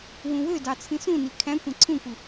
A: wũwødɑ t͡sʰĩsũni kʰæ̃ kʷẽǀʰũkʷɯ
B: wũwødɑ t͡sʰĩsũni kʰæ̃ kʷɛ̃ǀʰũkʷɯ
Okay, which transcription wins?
A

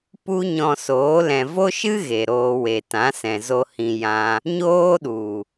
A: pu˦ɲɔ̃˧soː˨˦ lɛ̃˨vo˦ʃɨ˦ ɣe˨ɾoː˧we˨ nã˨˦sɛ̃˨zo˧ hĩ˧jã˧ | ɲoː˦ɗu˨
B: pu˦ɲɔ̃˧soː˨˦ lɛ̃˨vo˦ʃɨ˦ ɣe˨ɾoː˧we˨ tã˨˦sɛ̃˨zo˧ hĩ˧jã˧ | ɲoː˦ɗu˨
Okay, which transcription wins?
B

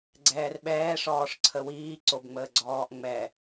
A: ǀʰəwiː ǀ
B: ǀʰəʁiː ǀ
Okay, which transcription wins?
A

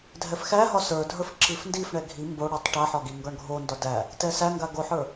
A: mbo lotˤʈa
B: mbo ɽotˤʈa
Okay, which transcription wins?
B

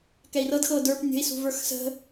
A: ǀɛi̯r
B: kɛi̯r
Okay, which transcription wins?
B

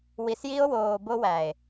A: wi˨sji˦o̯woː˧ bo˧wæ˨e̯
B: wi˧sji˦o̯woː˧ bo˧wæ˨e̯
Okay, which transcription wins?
B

